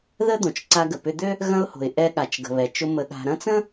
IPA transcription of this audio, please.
ð ə˥ d̪ õ˩ t͡ʃ ǀ a˧ ɡ ə˩ p ʏ˧ d̪ ø˥ | ɣ ɐ̃˧ ʊ̯ h o̤˩ ɪ̯ ʔ ɛ˧ ɠ a˩ t͡ʃ ɡ ə̤˩ β ɛ˩ t͡ʃ ʊ˧ m ə˧ ɠ a̤˧ ɾ ɐ̃˥ t͡s ə̃˥

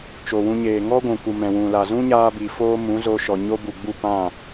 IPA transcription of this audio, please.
t͡ʃ o˨ w ũ˧ ɲ eː˨ ŋ ɔ˦ ɡʷ ũ˨ k u˨ m ɛ̃˨ w ũ˨ l a˨ z ũ˦ ɲ aː˧ b i˨ f oː˦ m ũ˨˦ z o˧ ʃ ɔ˨ ɲ o˦ b u˨ ɡ͡b u˦˨ p ã˦˨

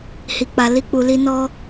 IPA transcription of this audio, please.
h i˨ k͡p a˨ l i˧ k͡p u˨ l i˧ n ɔ˧

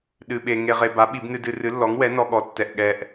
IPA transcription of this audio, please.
ɗ ɨ˧ ɓ e˧ ŋ e˧ ʁ e˧ b a˨˥ ɓ i˨˩˦ b n ɨ˧ d ɨ˧ r ɨ˨˥ lː ɔ˨˥ ŋ w ɛ˨˥ n ɔ˧ ɠ ɔ˨˥ tː ɛ˧ ʔ ɠ ɛ˧ ʔ

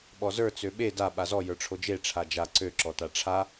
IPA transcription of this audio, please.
ɓ ɔ z ə˞ t͡s ø ɓ e d a ɓ a z ɔ j ə˞ ʈ͡ʂʰ o d͡ʒ e ʈ͡ʂʰ a d͡ʒ a ǀ ø ǁ ɔ t a ʈ͡ʂʰ a

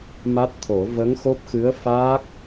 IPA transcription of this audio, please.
m a˦˥ t̚ t̪ʰ o˨˩˦ v ə˧˥ ŋ x o˦˥ p̚ x ɨ˧˥ ə̯ f aː˦˥ k̚

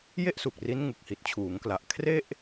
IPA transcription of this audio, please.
j e˥˩ ʔ s u˨˩ k̚ r i˦˥ n ŋ u˨˩ k̚ h i˨˩ t̚ t͡ɕʰ uː˩˦ ŋ k l a˨˩ ʔ kʰ r e˥˩ ʔ

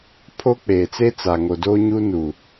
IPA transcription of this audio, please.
pʰ o˦ k͡p eː˨ t͡s e˦ t͡s a˨ ŋ o˨ d oː˦ ɲ uː˦ n u˨

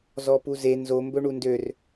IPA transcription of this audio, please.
z ɔ p u z e n z o m b ɵ ɳ u n d ø r

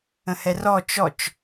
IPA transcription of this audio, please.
ə̃ h ɛ r ɔ t͡ʃ ɔ t͡ʃ

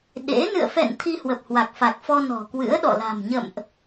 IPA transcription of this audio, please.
ɗ ḛ˧˥ n ɨ̰˧˨ ə̯ f ɛ̰˧˨ n t̪ʰ i˧ h w ə˨˩ p̚ h w a˨˩ k̚ f a˨˩ k̚ f ɔ˧ n ɔ̤˨˩ k w ɨ̰˧˥ ə̯ ɗ ɔ̰˧˨ l a̤˨˩ m ɲ ə̰˧˨ m ʔ

